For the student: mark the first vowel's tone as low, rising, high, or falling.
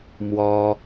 high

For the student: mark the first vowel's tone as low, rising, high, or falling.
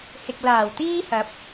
low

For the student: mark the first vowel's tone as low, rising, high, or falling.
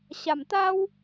low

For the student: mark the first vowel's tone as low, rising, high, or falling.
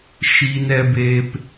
high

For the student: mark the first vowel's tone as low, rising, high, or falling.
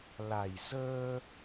low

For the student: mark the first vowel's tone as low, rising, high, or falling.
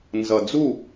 low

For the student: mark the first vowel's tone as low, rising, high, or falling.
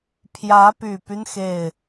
rising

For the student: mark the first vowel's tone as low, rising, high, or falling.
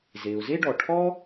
low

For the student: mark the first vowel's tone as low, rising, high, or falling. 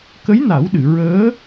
rising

